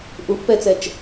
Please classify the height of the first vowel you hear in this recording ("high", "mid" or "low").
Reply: high